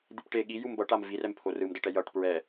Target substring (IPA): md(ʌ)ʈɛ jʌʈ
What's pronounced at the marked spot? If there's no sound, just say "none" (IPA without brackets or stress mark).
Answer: ʌ